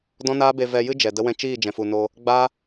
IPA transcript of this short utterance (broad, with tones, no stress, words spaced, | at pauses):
dɔ̃˦ naː˦be˧ vɛ˧jɨ˦ d͡ʒɛ˨də˦wɛ̃˦ t͡ʃiː˦˨d͡ʒɛ̃˨fu˨no˧ | ɡ͡ba˦